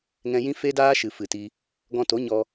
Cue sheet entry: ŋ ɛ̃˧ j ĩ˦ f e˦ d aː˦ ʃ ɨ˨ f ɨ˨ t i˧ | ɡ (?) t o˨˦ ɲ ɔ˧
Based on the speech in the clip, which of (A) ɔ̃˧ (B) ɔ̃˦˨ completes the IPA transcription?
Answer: A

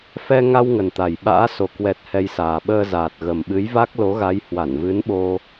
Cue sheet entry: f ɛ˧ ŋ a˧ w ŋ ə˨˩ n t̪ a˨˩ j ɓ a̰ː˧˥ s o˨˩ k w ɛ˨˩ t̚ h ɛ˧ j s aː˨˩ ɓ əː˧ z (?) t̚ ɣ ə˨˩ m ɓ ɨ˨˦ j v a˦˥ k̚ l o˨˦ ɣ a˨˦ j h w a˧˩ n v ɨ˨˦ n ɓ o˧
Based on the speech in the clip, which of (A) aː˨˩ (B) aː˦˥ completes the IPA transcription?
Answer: A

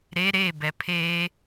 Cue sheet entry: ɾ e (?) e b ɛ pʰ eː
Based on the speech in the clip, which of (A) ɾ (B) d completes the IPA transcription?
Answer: A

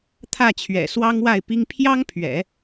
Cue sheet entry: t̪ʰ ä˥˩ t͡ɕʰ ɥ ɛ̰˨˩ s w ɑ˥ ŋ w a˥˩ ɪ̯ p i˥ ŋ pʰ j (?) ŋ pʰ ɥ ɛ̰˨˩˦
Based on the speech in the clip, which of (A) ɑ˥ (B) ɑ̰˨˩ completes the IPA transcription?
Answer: A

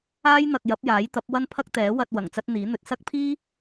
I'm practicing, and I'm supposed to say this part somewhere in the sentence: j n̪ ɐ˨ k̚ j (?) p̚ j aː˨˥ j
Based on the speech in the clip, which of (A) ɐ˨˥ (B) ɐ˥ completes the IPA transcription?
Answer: A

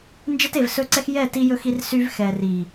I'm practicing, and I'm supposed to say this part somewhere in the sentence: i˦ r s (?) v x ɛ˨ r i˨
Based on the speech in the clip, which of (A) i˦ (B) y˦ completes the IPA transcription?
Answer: B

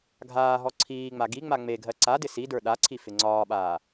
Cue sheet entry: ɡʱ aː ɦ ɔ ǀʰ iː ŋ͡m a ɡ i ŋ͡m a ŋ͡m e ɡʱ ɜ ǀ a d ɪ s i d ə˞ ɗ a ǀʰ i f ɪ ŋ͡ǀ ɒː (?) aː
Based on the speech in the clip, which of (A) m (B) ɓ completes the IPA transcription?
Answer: B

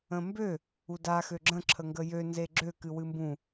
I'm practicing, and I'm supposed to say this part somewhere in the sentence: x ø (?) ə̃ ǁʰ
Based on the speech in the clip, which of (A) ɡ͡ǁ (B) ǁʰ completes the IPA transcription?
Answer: A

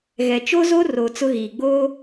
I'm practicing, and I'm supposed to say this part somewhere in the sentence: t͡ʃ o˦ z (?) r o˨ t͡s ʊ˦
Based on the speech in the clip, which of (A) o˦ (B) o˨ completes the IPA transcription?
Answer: A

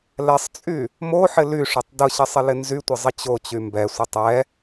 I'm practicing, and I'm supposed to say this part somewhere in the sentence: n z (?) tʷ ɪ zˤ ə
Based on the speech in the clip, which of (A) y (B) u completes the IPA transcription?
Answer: A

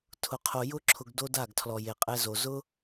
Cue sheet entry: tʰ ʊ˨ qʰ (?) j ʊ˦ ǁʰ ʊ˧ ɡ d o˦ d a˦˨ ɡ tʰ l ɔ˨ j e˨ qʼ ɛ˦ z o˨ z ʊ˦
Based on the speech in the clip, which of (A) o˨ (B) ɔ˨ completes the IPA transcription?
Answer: A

